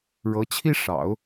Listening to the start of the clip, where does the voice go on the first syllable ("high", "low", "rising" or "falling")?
rising